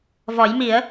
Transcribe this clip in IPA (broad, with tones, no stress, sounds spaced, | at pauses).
v ɔ˨˩˦ j m i˨˩˦ ə̯